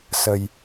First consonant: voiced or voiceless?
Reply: voiceless